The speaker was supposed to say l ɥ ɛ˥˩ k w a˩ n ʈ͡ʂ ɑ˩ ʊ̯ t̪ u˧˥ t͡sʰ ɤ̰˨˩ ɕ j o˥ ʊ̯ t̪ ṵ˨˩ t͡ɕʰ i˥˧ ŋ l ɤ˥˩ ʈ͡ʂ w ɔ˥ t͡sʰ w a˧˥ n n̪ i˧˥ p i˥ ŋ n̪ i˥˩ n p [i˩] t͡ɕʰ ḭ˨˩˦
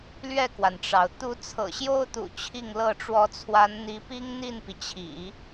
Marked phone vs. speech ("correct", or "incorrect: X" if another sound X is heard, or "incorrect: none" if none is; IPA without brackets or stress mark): correct